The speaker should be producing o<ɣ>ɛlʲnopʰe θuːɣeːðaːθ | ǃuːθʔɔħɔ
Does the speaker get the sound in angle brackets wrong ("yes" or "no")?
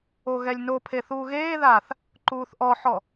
no